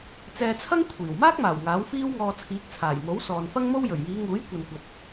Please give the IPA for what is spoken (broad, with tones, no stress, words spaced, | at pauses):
t͡sɛː˧t͡sʰɐ˥ŋ kʷʰiː˨˩w maː˥k̚maː˨˩w ŋaː˨˥wfiː˥wŋɔː˧ t͡sʰiː˨˥k̚t͡sʰaː˨˩jmo˨˥w sɔː˨nfɐ˥ŋmo˥wjɵ˨˩ɥ jiː˨˧ŋuː˨˥jkʷɐ˨nkʷɐ˨t̚